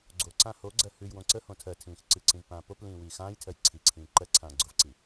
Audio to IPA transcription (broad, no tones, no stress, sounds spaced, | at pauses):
ɡ͡ǀ o ǀ ã h o ɡ͡ǀ ɜ h ʉ j w õ ǀ ə h õ tʰ ɜ tʰ ĩː x ǀ ɨ ǀ ĩ v p ãː p o p l ĩː w iː x ãː j tʰ ɜ j ǀʰ i ǀʰ ĩː ǃ ɜ ǀʰ ãː ɡ͡ǀ ʊ v ǀ i